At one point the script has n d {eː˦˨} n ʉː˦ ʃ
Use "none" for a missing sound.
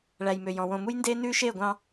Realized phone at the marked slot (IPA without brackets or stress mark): eː˦